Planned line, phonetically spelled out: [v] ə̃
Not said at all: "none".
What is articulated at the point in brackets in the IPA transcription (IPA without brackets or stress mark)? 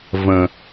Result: v